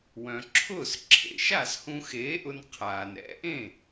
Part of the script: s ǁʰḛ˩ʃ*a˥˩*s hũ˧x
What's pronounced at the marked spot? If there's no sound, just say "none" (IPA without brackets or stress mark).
a˥˩